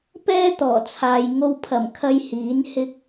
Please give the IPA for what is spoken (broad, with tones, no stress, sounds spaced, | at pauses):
p ɛː˥ t̪ ɔː˨˩ t͡sʰ aː˨ j ŋ o˧ w pʰ ɐ˨˩ m kʰ ɐ˥ j h iː˨˥ n h ɪ˥ k̚